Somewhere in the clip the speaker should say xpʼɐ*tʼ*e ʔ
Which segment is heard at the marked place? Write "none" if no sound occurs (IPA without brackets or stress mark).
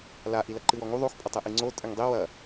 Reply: tˤ